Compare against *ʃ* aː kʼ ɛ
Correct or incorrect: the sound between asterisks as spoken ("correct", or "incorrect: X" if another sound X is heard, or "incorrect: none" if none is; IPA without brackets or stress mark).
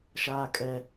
correct